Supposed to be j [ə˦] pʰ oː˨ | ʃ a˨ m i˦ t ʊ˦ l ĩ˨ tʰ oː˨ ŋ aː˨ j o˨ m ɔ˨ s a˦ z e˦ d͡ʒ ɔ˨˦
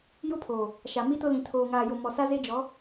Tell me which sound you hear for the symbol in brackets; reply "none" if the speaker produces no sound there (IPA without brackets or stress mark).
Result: ʊ˦